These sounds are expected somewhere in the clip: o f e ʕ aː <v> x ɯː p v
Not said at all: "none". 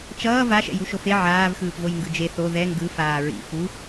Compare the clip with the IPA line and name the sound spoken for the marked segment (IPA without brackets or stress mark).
v